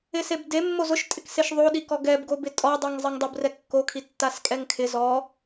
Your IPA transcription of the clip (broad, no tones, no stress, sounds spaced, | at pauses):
ɪ s e b d e mː o z ʊ ʃ tʼ ɪ k s e ʃ ðˤ o ɗ i k ɔ ɡ ɛ b ɡ o b ɪ tʼ ɔ dˤ i ŋ zˤ ɛ ŋ dˤ ʊ b r ɛ kː o kʰ i tː a s kʼ ɛ ŋ kʰ ɪ z ɔ